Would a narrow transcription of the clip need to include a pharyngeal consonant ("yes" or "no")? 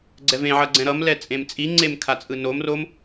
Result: yes